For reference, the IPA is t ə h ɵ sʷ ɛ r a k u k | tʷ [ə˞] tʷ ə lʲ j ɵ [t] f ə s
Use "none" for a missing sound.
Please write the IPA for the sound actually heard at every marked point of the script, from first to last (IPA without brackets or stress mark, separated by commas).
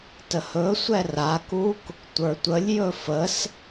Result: ə˞, none